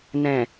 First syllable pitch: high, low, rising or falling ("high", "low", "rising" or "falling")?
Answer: low